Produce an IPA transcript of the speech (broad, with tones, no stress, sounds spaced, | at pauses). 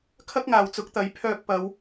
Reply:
kʰ ɐ˥ k̚ ŋ aː˨ w t͡s ʊ˨˥ k̚ t̪ ɐ˨˥ j pʰ œː˧ k̚ p ɐ˨˧ w